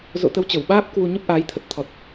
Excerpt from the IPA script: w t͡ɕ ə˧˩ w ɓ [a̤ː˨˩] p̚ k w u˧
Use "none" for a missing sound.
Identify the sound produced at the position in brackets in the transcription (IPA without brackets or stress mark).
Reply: aː˦˥